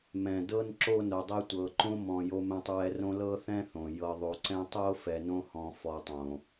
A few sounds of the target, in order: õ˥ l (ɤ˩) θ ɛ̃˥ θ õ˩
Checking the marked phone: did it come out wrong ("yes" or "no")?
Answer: yes